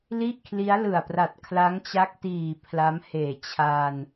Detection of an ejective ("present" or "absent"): absent